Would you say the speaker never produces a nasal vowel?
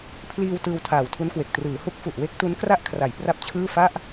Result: yes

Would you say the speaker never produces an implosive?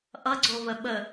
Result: no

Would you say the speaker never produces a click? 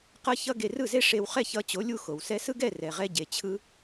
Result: yes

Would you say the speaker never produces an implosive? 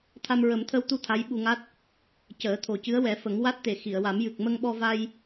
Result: no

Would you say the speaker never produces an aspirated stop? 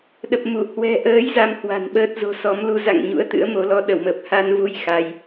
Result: yes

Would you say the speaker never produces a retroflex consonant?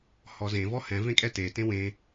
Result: yes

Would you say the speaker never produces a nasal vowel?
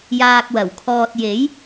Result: yes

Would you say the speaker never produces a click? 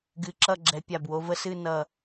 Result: no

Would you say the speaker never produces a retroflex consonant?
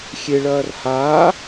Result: no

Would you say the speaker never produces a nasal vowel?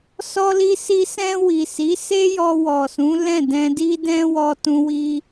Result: no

